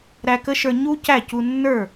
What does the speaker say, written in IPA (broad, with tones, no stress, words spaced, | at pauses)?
ɾæ˧kə˦˥ʃə˞˧ ɲu˦˥ cæ˥˩cu˧ nːə˞˥˩